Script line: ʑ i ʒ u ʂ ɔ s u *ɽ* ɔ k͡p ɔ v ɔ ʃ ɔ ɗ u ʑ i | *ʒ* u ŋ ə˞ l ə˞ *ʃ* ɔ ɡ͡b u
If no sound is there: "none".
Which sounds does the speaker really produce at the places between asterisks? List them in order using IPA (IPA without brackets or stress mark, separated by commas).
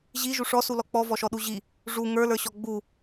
l, ʐ, ɕ